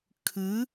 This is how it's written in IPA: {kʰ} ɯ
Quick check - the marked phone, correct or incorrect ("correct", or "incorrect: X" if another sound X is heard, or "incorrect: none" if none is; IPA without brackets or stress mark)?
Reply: correct